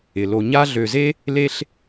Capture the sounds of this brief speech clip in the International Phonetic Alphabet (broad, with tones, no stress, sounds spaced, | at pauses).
ɪ˩ l o˨ ɲ a˦ ɮ ø˨ z e˥ | l e˥ ɬ